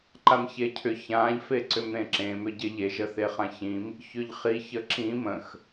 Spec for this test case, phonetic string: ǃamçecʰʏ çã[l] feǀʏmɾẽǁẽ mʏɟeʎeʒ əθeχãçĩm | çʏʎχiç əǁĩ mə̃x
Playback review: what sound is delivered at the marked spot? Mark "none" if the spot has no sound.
ʎ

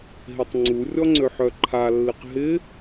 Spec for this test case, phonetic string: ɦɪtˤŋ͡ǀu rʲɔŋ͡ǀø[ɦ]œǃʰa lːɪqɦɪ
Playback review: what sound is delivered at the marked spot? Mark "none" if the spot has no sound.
ħ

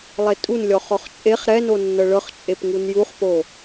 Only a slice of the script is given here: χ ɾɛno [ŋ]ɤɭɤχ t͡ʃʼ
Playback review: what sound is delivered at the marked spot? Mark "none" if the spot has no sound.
nː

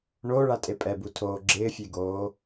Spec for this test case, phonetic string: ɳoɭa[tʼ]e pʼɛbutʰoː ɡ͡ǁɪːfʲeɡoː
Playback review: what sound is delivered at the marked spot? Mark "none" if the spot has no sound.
tʼ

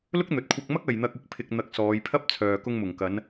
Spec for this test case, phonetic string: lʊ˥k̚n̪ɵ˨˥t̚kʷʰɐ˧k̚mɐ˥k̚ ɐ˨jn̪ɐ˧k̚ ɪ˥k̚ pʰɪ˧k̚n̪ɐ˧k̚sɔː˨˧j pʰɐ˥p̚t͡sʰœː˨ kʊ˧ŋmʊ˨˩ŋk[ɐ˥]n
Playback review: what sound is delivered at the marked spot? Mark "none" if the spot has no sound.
ɐ˨˧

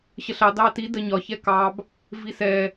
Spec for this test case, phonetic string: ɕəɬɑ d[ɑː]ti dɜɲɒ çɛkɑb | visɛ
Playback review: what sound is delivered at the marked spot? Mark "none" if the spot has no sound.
ɑː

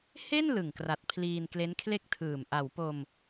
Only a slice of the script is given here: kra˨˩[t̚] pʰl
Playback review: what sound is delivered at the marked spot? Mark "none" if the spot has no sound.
t̚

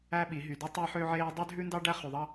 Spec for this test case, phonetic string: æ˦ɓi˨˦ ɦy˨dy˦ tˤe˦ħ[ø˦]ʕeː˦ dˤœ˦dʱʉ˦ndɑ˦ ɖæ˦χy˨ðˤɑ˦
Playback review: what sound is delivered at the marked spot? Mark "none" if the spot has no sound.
ø˦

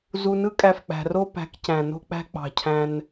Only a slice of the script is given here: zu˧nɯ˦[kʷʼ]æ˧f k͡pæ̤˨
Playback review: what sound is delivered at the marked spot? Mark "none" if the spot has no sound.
kʼ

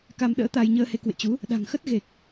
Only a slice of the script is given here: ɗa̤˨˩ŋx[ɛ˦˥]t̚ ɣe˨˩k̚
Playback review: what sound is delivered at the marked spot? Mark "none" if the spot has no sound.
ə˦˥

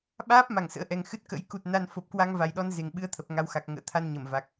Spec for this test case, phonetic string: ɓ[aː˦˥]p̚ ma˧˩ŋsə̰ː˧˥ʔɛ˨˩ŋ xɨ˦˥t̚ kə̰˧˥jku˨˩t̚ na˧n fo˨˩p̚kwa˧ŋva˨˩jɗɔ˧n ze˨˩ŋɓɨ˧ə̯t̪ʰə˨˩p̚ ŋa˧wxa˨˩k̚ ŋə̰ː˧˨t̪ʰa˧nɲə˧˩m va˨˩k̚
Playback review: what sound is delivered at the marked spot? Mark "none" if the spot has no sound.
aː˦˥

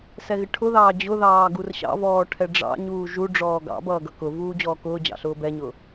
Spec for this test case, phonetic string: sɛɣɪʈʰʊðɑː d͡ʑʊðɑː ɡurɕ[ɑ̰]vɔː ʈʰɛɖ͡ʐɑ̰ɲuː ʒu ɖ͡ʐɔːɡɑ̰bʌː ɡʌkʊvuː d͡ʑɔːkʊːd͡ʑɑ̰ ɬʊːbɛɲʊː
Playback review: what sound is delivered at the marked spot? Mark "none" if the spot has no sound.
ɑ̰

